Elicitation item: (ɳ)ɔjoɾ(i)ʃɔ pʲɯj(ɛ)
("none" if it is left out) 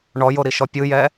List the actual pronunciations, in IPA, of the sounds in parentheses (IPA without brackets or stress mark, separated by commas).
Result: ɳ, i, ɛ